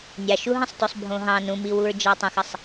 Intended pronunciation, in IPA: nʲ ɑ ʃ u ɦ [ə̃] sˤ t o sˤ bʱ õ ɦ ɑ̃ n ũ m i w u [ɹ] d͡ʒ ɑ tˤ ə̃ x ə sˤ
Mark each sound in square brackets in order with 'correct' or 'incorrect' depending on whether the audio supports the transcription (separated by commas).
correct, correct